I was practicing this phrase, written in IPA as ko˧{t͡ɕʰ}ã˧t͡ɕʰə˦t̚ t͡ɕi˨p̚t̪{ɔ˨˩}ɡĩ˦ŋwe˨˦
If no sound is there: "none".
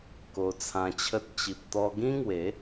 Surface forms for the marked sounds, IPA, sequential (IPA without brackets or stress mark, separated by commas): t͡sʰ, ɔ˧